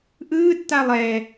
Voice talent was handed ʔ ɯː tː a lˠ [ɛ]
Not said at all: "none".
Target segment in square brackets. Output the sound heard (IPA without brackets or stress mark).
ɛː